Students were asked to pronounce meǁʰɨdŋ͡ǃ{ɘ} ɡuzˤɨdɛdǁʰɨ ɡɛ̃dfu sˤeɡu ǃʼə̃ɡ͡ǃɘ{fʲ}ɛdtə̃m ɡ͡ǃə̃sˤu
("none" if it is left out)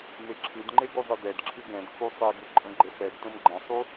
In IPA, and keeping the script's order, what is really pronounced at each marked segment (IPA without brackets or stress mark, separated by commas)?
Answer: e, f